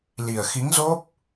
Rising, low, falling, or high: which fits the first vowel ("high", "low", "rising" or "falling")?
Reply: low